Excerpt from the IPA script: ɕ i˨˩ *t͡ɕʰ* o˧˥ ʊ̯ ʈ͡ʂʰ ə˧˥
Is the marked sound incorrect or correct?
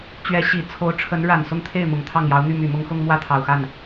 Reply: incorrect